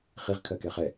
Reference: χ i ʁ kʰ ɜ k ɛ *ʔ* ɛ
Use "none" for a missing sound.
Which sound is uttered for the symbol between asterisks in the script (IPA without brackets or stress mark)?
χ